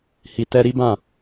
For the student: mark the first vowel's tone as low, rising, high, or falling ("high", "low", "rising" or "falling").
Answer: low